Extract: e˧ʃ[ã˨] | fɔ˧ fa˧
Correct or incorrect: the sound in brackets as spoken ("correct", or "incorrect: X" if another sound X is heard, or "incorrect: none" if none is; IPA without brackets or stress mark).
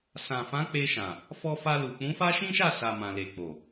correct